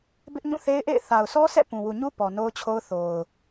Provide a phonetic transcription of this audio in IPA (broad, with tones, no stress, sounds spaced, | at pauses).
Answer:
b ɪ˦ ʔ ɲ ũ˦˨ θ e˦ ɪ̯ ʔ ḛ˦˨ ɪ̯ θ a˨ ʊ̯ sʰ ɔ˦ s ɛ̰˦˨ p ũ˨ w u˨ ɲ u˦ p ɔ˨ n o˦ ʊ̯ t͡ɕʰ o˦ ʊ̯ θ o˨ ʊ̯